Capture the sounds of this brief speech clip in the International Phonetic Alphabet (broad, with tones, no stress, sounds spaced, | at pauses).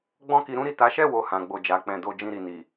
ɡ͡b ɔ̃˦ k i˧ ɾ ũ˦ ɾ i˦˨ t a˨˦ ʃ ɛ˦˨ w o˨ h ã˨˦ ɡ͡b o˦˨ d͡ʒ a˨˦ k͡p ɛ̃˧ d o˦ d͡ʒ ĩ˦˨ ɾ i˨ n i˨